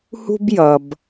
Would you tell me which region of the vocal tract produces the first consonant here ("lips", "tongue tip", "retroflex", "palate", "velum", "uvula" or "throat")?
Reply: throat